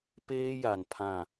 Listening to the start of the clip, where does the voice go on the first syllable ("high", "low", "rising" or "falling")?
high